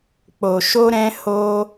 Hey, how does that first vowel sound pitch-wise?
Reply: low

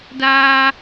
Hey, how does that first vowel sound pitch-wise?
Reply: high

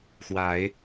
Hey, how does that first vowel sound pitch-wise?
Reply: rising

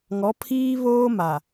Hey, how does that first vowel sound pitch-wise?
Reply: rising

